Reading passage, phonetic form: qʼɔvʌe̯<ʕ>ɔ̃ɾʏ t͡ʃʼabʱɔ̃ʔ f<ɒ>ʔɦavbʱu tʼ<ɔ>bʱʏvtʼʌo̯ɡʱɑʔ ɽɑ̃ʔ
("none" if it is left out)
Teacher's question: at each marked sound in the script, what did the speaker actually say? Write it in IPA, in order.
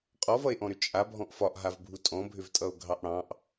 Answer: ʔ, ɒ, ɔ̃

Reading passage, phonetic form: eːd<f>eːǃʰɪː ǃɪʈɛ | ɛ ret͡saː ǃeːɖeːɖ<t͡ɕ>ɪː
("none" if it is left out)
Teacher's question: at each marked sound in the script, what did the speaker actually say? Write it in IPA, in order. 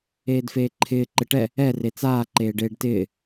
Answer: f, t

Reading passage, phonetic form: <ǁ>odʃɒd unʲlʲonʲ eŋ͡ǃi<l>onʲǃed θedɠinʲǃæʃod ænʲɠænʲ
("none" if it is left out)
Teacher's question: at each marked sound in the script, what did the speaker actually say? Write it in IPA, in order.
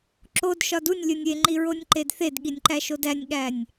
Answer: ǁ, ɹ

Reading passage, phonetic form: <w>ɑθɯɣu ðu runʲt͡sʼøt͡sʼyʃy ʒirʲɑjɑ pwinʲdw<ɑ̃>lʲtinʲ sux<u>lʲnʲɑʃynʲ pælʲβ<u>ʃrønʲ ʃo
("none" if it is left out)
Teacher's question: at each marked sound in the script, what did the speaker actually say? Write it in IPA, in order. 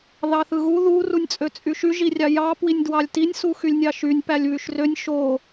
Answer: ð, ɑ, y, y

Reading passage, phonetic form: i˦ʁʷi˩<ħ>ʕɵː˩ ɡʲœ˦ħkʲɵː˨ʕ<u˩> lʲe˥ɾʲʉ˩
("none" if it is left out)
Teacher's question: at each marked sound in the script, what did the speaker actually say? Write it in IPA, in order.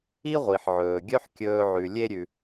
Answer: ħ, ʉ˩

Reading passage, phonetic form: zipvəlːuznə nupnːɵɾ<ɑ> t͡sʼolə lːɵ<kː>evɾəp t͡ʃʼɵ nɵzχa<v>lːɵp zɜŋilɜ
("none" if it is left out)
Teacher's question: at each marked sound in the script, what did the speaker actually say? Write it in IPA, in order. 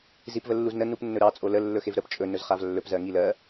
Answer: ɑ, x, v

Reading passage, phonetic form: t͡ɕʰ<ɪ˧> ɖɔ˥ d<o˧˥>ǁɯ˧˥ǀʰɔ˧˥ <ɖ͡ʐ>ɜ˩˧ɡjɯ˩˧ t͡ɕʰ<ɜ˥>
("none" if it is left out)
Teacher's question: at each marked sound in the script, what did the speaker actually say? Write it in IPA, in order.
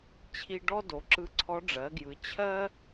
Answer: i˧, o˩˧, ɖ͡ʐ, ɜ˥

